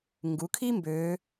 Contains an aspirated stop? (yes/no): yes